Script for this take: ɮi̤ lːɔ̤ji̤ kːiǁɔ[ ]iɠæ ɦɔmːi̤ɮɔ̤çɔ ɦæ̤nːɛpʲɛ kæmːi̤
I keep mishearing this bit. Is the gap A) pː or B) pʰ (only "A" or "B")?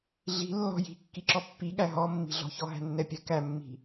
A